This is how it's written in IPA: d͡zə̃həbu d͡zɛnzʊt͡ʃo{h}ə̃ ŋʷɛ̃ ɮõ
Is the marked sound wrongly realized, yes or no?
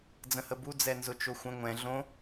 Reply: yes